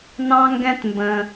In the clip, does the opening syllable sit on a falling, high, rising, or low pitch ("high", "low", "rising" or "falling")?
high